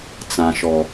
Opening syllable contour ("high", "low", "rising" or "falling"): low